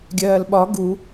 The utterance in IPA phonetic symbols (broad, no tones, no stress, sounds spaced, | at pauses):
ɡʲ ɜː l ɓ ɒ ɡ u